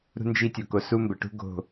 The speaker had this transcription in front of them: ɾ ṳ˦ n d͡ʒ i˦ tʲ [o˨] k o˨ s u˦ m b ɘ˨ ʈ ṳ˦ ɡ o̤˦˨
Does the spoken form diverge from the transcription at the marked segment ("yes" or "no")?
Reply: no